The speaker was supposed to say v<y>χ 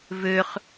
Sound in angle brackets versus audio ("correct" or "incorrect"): incorrect